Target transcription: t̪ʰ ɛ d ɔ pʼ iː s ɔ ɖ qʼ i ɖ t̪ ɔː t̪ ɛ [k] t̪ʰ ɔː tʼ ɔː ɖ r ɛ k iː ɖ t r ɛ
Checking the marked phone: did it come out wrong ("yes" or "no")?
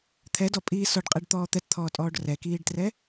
yes